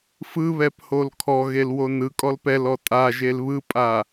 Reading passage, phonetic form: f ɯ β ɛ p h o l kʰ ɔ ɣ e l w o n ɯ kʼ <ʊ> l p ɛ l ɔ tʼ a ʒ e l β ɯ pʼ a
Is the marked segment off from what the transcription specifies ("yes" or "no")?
yes